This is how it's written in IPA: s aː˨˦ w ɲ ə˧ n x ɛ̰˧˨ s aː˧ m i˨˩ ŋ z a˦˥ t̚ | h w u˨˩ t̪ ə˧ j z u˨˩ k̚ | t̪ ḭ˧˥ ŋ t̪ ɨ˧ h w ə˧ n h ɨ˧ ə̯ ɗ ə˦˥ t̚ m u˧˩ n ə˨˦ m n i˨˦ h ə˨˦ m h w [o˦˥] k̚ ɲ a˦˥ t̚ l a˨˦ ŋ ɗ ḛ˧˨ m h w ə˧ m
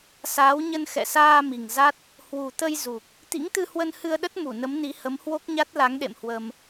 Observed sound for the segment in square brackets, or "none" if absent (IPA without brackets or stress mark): o˦˥